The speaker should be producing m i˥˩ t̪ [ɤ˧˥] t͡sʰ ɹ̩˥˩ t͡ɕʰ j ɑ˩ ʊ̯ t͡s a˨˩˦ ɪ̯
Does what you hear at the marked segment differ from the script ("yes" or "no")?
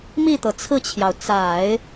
yes